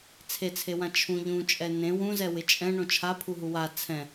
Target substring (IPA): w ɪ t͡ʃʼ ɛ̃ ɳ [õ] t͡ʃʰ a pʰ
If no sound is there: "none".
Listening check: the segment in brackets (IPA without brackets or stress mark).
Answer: õ